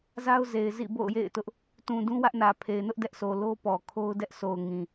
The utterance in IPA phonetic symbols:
z a˦ ʊ̯ z e˨ ɪ̯ z ḭ˦˨ b o̰˦˨ ʊ̯ j ḛ˦˨ ɪ̯ t ʊ˦ ʔ | t ũ˨ d ũ˦ w ä˦ ʔ n ä˨ pʰ e˨ ɪ̯ n ʊ˦ ʔ d ɛ˦ ʔ s o˨ l o˦ p ɔ˨ kʰ o˦ ʊ̯ d ɛ˦ ʔ s o˨ ʊ̯ ŋ ĩ˨

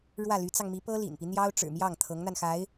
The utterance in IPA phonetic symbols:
ɻ w ä˥˩ l y˧˥ t͡s ɑ˧ ŋ m i˧˥ p ɤ˥ l ḭ˨˩ n p i˦ n̪ j ɑ˥ ʊ̯ ʈ͡ʂ ɻ̩˨˩ m j ɑ˥˩ ŋ t̪ʰ ɤ˧˥ ŋ n̪ a˧ n x a˧˥ ɪ̯

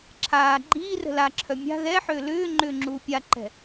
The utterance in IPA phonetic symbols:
ǁʰ aː ɡ͡ǃ iː r ə̤ l a ǁʰ œ mʲ a̤ ð ɛ ħ ʏː l ʏː ŋ͡ǃ ʏː ŋ͡ǁ uː pʲ a ǃ ɛ̤

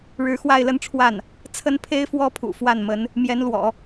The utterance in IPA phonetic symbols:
ɻ ɻ̩˧˥ x w a˥˧ ɪ̯ l ə˥˧ n ʈ͡ʂʰ w a˥˩ n | t͡sʰ ə˥ n pʰ e˥ ɪ̯ f w ɔ˥ pʰ ṵ˨˩ f w a˥˩ n m ə˧˥ n | m j ɛ˧˥ n l w ɔ̰˨˩˦

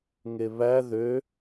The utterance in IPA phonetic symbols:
ŋ e β æ ð ø

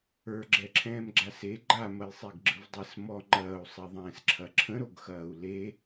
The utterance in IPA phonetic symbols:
ə˞ ɡ͡ǁ ɛ ǁʰ ɛ̃ː m ɡ͡ǁ a s e ɡ͡ǃ a m ɐ j sˤ e ɡ ɡ͡ǁ ɯ v dˤ e s m ɔ ŋ͡ǃ ɐː u̯ sˤ e ðˤ ɛ̃ː s ǁʰ ɐ ǁʰ ə̃ ɾ o ɡ x ɐː u̯ l e

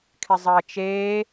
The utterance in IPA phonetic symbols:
kʰ ɪ zˤ əː t͡ʃ eː

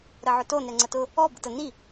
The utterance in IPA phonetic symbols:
ɾ ə ʕ ʊ t o n ɛ ŋ͡ǀ ə t ʊ | ɔ b ə t ə n i

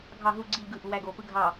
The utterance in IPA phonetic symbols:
ɡʱ ɑ ɦ u ɡ͡ǀ i ʎ ɡ ɯ ʔ u w æ ɡ o p ɯ ɡʱ ɑ

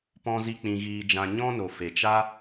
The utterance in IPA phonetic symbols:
p ɔ̃˦ z i˦ k͡p ĩ˧ ɣ iː˧ d͡ʒ ã˧ ɲ ɔ̃˦ n o˨ f e˨ t͡ʃ a˦

